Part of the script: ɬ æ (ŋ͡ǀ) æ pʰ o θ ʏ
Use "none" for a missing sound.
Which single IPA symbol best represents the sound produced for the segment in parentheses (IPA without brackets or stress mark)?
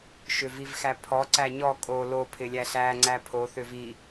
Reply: ŋ͡ǀ